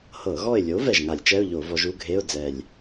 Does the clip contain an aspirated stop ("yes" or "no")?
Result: no